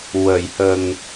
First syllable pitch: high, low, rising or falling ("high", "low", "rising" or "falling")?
low